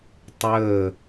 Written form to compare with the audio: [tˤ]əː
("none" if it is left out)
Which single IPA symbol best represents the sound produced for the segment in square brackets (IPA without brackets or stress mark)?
tˤ